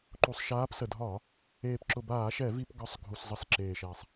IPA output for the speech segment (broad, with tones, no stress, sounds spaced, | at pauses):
ǃ u˨˩ sˤ ʃ aː˨˦ p s ə˨˩ dʱ ɒː˧˩˧ | eː˨˩ p ǁ ʊ˨˩ b aː˧˩˧ ʃ ɛ˧˩˧ v i˧˩˧ p ɡ ɒ˨˩ sˤ ɡʱ u˨˩ s zˤ ə˧˩˧ s ǁ eː˨˩ ʃ ɛː˨˩ sˤ